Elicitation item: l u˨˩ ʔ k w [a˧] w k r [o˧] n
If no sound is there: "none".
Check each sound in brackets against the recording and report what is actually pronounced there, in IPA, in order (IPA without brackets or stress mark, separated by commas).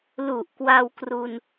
a˧, u˧